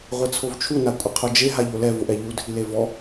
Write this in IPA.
ʁʷ e t͡sʰ o v t͡ʃʰ u n a kʷʼ ɪ qʰ o d͡ʒ e ɦ a ʎ o l ɛ v ʊ ʔ ɛ ʎ u dʱ i l e v ɔ

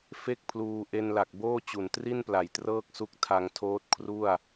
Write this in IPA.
f e˥˩ k̚ pʰ l uː˧ ʔ e˧ n l a˨˩ k̚ b oː˥˩ t͡ɕ u˨˩ n t r i˥˩ n p l a˨˩ j t r ɤː˥˩ k̚ s u˦˥ k̚ tʰ a˧ ŋ tʰ oː˦˥ t̚ kʰ r u˥˩ a̯

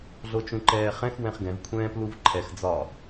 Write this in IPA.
ɮ o t͡ʃ ũ ǃ ɛː χ ɛ̃ x w ɛ̃ χ ɡ ɛ̃ v kʷʰ ɛ̃ː p l u v ǃʰ ɛ x d͡z ɒ

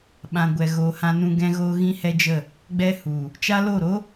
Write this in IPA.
ɓ ã˨ ɡʷ ɛ˨ ɣ oː˨ h ã˧ n ũ˧ ɡ ɛ̃˧ ɣ oː˧ ɣ ĩ˦ h ɛ˦ d͡ʒ ə˦˨ | ɡ͡b ɛ˦ h u˨ | t͡ʃ a˦ l o˦˨ ɾ o˦

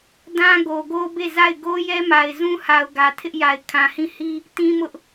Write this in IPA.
d ã˦ ɡ o˨ ɡ o˦ b e˦˨ z a˦˨ ɪ̯ ɡ o˦ j ɛ˦ m a˨ ɪ̯ z ũ˦ h a˨ ʊ̯ ɡ ä˨ tʰ ɪ˦ ʔ j a˨ ɪ̯ kʰ ã˨ h ĩ˦˨ h i˦ | t ĩ˦ m ʊ˦ ʔ

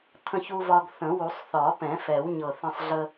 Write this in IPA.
t̪ʰ ə̃˧ ç u˧ v ɒ˧ ɡ θ ə̃˨˩˦ w u˨˩˦ sˤ θ ɒ˨˩˦ p ɛ̃˨˩˦ f ɛ˨˩˦ w ɲ ɤ˨˩ θ ə̃˧ sˤ ɮ ə˧

